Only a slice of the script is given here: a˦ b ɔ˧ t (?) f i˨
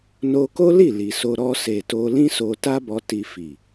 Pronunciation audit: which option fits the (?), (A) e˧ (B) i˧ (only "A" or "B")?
B